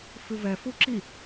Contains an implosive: no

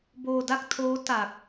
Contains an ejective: no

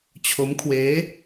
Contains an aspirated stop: yes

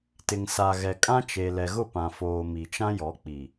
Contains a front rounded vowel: no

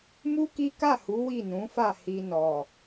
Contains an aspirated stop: no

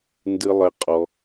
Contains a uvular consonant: yes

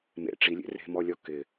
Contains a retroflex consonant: yes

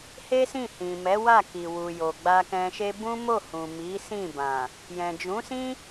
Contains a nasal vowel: yes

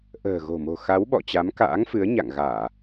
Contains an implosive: yes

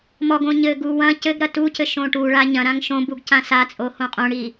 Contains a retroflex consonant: yes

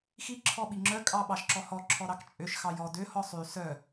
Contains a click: yes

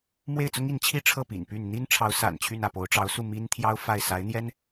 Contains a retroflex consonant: yes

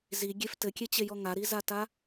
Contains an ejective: no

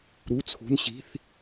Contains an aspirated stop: yes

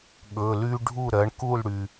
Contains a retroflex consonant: yes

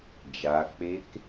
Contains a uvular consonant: no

